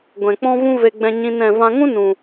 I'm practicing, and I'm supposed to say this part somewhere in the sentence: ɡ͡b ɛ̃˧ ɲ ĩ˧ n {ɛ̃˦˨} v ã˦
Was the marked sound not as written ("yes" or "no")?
no